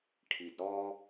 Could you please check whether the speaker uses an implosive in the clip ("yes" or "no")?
no